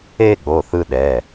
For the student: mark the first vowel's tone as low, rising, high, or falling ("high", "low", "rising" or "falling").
high